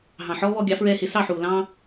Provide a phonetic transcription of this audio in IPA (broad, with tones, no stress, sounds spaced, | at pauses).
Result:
ɦ ɑ̃˨ ħ ɔː˦ β ɔ˧ ɡʲ ɑ˨˦ f ɹ ɛː˧ h ɪ˨˦ s ɑ˦˨ ħ uː˨ l ɑ̃ː˦